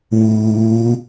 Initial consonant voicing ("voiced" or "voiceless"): voiced